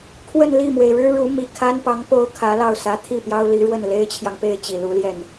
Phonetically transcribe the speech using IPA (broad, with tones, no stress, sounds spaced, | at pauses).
kʰ w ə˥˧ n l i˥˩ m w e˩ ɪ̯ ɻ ɻ̩˥ ɻ u˧˥ m i˨˩ kʰ a˥ n p ɑ˧˥ ŋ p o˥ ʊ̯ kʰ ä˧˥ l ɑ˥˩ ʊ̯ s ä˧˥ t̪ʰ i˥˩ p j ɑ˥ ʊ̯ l i˧˥ ɻ w ə˥˩ n l e˥ ɪ̯ t͡ɕʰ j ɑ˨ ŋ p e˥˩ ɪ̯ t͡ɕ i˨˩ l u˧˥ l j ɛ˥˩ n